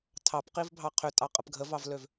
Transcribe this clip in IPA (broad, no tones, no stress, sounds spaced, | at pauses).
tʰ ɑ p q i v bʱ ɑ qʰ ø tʼ ɑ qʼ ə p ɡʱ ə v ɑ v l ø v